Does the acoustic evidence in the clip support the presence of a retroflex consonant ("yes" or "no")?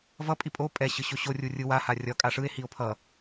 yes